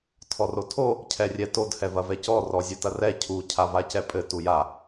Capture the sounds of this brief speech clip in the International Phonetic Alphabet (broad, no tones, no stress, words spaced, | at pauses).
tʰɔrotʰo | cʰɛrʲɛtod hɛvɐvɛcɔ rɔzʲɘtɐrɛ cʰu cʰavacɛpʼɘ tuja